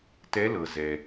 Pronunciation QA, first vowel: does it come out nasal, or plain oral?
oral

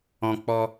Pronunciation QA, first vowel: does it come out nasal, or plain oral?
nasal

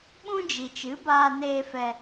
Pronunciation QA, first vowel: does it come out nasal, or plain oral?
nasal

